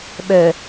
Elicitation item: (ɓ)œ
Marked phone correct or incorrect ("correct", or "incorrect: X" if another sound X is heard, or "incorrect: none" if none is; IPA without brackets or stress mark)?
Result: correct